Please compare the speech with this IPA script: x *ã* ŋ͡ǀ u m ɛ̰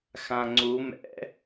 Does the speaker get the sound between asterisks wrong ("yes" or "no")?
no